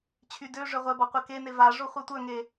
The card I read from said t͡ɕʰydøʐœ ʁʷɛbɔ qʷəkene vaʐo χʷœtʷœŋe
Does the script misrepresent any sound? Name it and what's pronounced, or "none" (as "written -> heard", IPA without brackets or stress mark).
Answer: none